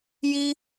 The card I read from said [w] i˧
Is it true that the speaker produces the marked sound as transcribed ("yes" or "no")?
no